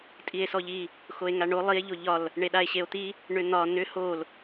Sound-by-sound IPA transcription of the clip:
tʼie̯sɔʎi | xoe̯ŋaɳo lˠie̯ ʎoʎɒl | ɳeɗae̯ɕeo̯t̪i | ɳʏn̪ɒ nʏ hol

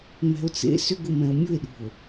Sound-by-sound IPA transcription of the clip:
mɛ̤o̯t͡sḛ sʏɡʊmɛ̃o̯ mʲʊe̯ɗṳo̯

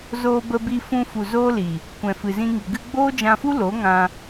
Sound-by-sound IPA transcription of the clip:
zoː˧bə˧bi˧ fũ˧fu˨ zoː˦li˨ | kʷɛ̃˨fɨ˨zĩ˧ŋi˨ ɡɨ˧ɡ͡boː˦d͡ʒã˧fu˦ lo˨˦ŋã˧

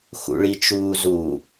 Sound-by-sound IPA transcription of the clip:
xṵɭit͡ʃuːzu

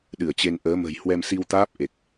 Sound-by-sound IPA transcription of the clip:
ɗɨ˧˩ə̯t͡ɕe˧n ʔəː˨˦mə̤˨˩j hwɛ˧msi˧wt̪aː˦˥p̚ ʔe˨˩k̚

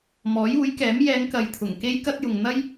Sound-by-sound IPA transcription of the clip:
mɔː˨˥juː˨˥jkɛː˨˥m jɛː˨˧ŋkɐ˨j t̪ʰʊ˨˩ŋke˥j kɐ˥t̚jʊ˨ŋ n̪ɐ˥j

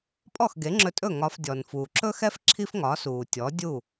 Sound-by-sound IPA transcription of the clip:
pʼɔ˥˩xɡe˩˥ŋ͡ǁɵ˧tʼɵ˥˩ ŋɒ˧fdʲɔ˩n fuː˩ǁɵ˥xɛ˥f ǁʰi˥fŋɒː˩˥s uː˩tʲɔ˩˥ dʲu˥˩

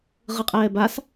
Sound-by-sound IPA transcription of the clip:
ʁɯqʼɛːbas

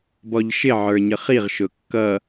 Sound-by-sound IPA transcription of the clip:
bɔʎʃɪ ʕə˞ɲəχiʁ ʃʊkːʌ

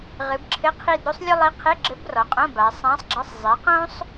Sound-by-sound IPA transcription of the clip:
ʁɨ˩˧bǁʰɘ˧˥˧ qʰi˦˨dɾu˥sˤ lʲo˥lˠi˧˥qʰe˧˥˧ɡ͡ǁɘ˧˥b rɔ˩˧qʼõ˧˥˧ba˩˧ sˤã˧˥sˤɡ͡ǁɐ˧˥˧sˤ zˤi˩˧qõ˥sˤ

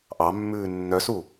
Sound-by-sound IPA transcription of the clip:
ʔɑmːʉː nːœsu

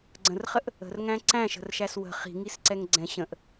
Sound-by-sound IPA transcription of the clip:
ɡ͡ǀə̃rχəʔ | ə̤rŋæ̃ ǀæ̃ʃə̤rʃæs wə̤ χi̤ŋisǀɛŋ ɡ͡ǀɛ̃ ɕə̃ʔ

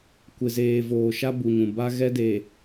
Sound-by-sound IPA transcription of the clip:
kʷɪ˨zeː˨voː˨ʃa˦ bu˨ɲũ˨ba˦ ɣɛ˦de˨

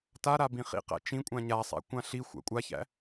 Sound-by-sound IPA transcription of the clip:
ta ɾabĩχḭqæ̰ t͡ʃĩkʷʼã ɲasˤa̰ kʷãɬixʷa̰ kʷʼaçæ̰

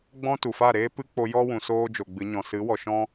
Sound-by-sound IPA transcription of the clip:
ɡ͡bɔ̃˦ tu˨fa˦˨ɾeː˦ pɨ˦k͡po˧jɔ˦wũ˨ soː˦d͡ʒo˨ɡ͡bɨ˨˦ ɲɔ̃˨sɨ˨˦ wɔ˨ʃɔ̃˦

